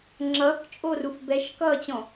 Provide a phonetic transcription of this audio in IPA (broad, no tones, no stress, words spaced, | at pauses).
ŋ͡ǁʌːkt͡ʃʼoːruf bɛʃkʌːt͡ɕɔ̃